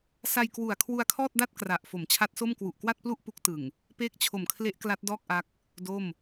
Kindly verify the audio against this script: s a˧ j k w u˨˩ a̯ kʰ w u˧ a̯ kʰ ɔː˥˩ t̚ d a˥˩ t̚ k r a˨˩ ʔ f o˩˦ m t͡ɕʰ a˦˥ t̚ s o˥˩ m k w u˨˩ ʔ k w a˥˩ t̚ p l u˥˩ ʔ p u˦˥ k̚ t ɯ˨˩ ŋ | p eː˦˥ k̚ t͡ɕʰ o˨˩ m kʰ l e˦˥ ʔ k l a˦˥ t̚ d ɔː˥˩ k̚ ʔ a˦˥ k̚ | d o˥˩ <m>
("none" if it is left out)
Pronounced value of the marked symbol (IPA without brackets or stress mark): m